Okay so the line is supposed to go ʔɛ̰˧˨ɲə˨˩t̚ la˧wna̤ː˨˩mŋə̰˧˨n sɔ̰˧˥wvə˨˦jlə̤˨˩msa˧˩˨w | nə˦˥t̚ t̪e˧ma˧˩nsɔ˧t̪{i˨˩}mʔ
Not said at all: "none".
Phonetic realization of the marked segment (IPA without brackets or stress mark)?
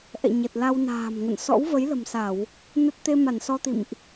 ḭ˧˨